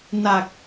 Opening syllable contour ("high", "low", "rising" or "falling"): low